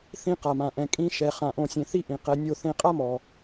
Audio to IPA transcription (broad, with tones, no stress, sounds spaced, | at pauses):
θ ĩ˧ q a˨ m ã˨ ʔ ɛ̃˨ kʼ ĩ˧ ʃ ɛ˨ χ ã˨ ʔ õ˧ sʲ ẽ˧ θ i˦ ʔ ĩ˨ q ɛ˧ nʲ o˦˨ θ ẽ˧ qʼ a˦ m ɔ˨